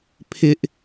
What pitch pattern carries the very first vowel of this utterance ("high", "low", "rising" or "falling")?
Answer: high